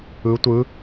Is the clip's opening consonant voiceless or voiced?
voiceless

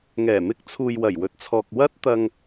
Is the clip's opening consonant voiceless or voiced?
voiced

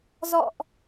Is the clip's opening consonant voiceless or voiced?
voiced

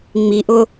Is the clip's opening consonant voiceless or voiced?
voiced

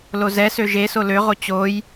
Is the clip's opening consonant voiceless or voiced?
voiced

